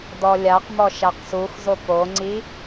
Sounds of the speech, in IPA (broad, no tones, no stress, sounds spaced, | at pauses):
d ɔ lʲ a q m ɔ ʃ a q s u x z ʊ p o ŋ͡ǀ i